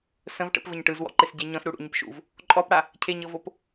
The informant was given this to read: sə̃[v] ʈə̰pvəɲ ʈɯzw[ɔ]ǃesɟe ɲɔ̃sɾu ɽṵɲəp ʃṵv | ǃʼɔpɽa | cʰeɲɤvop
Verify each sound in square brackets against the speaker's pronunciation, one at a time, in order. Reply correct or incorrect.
correct, incorrect: ɔ̰

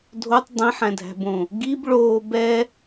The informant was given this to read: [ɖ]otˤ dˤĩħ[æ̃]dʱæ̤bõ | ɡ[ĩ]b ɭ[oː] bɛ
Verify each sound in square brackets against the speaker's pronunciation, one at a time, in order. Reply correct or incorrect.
incorrect: dʱ, correct, incorrect: i, correct

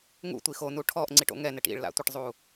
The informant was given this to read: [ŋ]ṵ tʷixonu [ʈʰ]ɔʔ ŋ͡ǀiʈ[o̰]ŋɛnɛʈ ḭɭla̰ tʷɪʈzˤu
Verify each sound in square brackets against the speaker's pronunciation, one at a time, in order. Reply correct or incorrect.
correct, correct, correct

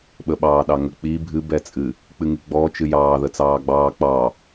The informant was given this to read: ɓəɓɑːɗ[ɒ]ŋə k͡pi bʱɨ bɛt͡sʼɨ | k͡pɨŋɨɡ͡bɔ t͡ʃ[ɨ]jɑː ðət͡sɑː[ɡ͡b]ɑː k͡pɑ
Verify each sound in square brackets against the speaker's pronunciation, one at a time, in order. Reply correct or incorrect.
incorrect: ɑ, correct, correct

